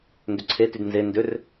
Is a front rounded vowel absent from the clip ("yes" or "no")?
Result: no